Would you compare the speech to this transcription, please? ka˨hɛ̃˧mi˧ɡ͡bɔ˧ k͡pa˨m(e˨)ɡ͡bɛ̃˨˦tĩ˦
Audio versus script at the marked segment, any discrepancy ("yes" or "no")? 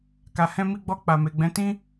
no